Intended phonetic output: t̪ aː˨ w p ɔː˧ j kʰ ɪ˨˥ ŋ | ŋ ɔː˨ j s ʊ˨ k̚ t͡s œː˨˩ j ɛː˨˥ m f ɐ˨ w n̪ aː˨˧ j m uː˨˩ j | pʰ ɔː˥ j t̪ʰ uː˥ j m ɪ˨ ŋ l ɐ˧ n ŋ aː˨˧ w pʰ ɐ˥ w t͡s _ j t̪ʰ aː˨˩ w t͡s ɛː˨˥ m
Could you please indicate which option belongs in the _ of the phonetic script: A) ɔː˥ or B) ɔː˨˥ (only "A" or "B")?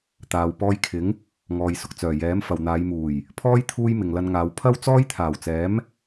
A